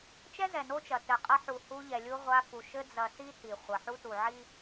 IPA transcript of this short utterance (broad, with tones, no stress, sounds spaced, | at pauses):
t͡ʃ ɛ˦ z ɛ˨ n o˦ t͡ʃ ɐ˨ t ɘ˨ qʼ ɐ˦ ħ u˨ h u˦ ʎ ɛ˨ lʲ u˦ ʁʷ a˦ f u˨ ʃ ɘ˦ d͡z ɐ˨ s i˦ t i˨ χʷ ɐ˨ ħ u˦ t u˨ ʕ i˦